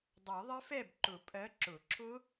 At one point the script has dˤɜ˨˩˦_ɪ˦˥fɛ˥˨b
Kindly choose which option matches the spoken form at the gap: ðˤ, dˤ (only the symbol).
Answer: ðˤ